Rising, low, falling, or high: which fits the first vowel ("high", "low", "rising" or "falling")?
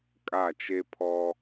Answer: falling